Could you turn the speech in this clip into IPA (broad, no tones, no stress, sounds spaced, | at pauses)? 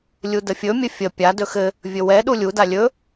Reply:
lʲ u d ə fʲ ɵ mʲ ɘ fʲ ə pʲ a d ɵ x ɘ | vʲ ɵ w ɛ ɗ u lʲ u d a lʲ ɵ